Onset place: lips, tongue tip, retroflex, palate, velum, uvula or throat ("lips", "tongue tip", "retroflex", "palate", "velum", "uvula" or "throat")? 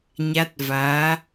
palate